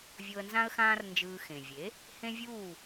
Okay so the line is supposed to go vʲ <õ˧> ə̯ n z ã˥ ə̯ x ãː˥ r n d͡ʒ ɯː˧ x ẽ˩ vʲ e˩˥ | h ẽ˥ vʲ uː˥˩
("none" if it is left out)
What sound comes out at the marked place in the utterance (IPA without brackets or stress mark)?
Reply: o˧